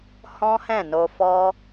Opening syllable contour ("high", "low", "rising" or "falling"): high